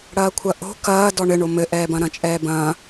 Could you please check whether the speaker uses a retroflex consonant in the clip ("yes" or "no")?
yes